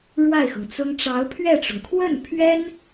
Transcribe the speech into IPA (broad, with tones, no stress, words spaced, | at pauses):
ɻwa˥˩ɪ̯xɤ˩ŋ t͡sʊ˥ŋ ʈ͡ʂɑ˧˥ʊ̯pʰɥɛ˥˩ʈ͡ʂʊ˩ŋ kʰwə˥˩npʰɥɛ˥n